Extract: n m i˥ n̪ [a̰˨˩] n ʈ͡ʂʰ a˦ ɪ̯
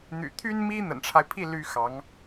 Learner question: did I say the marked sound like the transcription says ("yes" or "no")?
no